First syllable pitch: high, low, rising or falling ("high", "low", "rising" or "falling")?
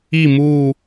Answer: falling